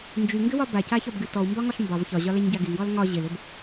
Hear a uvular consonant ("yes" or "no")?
no